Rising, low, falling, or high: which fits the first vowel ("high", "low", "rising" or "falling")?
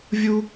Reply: high